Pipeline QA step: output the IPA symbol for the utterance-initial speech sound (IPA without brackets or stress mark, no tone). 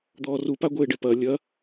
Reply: d̪